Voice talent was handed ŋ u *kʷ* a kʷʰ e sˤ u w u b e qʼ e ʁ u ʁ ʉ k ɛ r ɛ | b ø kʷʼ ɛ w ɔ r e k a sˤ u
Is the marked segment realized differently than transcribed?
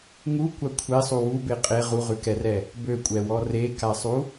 no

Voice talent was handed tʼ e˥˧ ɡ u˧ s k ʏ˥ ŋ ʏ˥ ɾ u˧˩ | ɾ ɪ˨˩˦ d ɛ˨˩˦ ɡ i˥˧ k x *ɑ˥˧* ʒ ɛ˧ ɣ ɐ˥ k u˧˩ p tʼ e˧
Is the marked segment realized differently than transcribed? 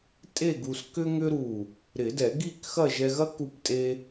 yes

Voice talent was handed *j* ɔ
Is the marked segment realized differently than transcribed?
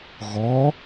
yes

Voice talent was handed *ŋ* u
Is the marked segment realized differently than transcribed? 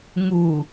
no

